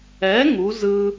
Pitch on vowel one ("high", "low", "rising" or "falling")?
rising